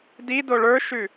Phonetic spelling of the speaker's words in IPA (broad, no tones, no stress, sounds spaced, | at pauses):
d i d o ɭ ə˞ ʃ ʉ